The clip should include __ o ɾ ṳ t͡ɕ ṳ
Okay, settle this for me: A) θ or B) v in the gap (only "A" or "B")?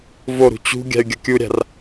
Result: B